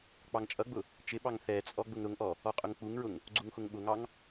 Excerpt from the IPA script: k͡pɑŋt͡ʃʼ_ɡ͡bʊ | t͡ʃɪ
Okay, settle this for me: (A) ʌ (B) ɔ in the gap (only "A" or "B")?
A